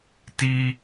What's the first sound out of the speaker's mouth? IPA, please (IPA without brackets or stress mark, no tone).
t